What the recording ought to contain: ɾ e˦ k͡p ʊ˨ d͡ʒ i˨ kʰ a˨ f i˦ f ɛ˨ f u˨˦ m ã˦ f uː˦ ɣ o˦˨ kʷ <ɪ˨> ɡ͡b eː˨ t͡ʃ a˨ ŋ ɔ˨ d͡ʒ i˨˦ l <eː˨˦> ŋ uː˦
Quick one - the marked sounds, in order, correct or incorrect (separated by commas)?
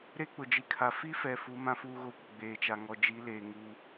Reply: correct, incorrect